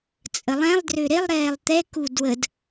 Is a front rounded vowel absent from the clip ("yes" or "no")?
no